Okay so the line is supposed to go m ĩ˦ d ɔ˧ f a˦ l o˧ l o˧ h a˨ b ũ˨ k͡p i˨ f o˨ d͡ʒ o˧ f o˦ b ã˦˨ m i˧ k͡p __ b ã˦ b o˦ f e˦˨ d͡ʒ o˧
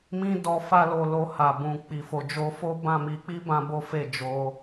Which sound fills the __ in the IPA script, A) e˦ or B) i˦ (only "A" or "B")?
B